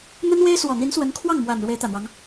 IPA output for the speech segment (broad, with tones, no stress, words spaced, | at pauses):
n̪ə˥nwe˥ɪ̯ swɔ˨˩n̪i˧˥nswə˧˥nkʰwɑ˥˩ŋ mwa˨˩n ɻwe˧˥ɪ̯t̪ä˨˩n̪wɑ˦ŋ